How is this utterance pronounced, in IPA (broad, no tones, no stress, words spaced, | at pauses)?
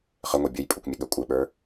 χɘŋʷe bʲəj pʼukʷmʲəɠə kʷʼɘɓə˞